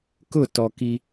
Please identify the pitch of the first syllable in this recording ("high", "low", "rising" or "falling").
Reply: falling